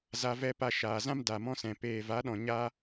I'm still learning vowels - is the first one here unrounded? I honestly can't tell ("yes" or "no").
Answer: yes